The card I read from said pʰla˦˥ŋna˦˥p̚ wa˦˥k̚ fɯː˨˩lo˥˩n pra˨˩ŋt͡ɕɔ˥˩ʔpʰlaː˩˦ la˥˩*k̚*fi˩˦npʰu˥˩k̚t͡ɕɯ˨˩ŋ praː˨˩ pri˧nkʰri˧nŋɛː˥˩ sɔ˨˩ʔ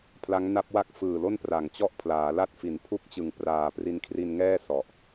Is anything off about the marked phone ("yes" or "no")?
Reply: yes